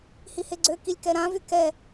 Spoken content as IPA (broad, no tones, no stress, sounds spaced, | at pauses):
h i h e ɡ͡ǀ ø k i lʲ k ɛ ɾ ã v y k ɛ